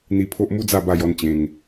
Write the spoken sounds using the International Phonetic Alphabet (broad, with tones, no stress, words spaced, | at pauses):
n̪i˧pʰo˦ʔ mu˦d͡za˥˧ ba˥˧jɔ˥˧nt͡ɕẽ˧ŋ